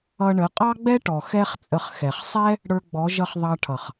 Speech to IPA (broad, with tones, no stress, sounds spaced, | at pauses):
ʌ˧ ɳ ə˨˦ qʼ ɑ˦ ɡ͡b ɛ˦ ʈ ɔ˨ x ɛ˦ χ t͡sʼ ə˧ χ x ɛ˨ χ sˤ ɛ˦ | ɽ ə˞˧ ɡ͡b ɔ˨˦ ʒ ʌ˧ χ ðˤ ɑ˧ ʈʰ ʌ˨ χ